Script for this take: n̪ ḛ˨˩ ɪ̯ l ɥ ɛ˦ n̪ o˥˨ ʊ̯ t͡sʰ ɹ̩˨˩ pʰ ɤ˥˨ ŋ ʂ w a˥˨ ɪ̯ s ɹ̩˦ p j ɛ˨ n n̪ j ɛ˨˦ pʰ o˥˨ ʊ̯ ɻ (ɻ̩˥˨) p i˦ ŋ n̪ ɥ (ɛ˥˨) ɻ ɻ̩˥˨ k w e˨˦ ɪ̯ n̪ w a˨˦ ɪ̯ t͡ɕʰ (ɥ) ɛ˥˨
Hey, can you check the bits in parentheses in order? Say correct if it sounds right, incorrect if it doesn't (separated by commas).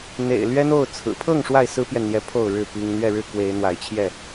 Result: correct, correct, incorrect